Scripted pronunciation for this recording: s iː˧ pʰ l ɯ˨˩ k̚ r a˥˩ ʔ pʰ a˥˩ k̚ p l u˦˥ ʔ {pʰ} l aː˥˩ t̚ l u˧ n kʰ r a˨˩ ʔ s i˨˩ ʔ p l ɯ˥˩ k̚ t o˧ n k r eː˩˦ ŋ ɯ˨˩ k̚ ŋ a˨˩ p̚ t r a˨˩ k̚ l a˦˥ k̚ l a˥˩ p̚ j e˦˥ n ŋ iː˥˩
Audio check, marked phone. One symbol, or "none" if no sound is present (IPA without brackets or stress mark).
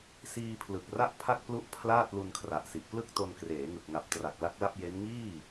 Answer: pʰ